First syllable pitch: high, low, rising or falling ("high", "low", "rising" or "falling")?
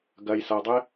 low